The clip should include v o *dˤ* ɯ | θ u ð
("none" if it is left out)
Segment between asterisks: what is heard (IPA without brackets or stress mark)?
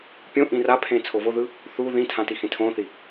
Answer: ð